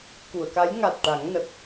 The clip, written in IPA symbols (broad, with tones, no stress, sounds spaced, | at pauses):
k u˨˩˨ ə̯ k a˧˥ j ŋ a˨˩ t̚ ʈ a˨˩˦ ŋ n ə˨˩ k̚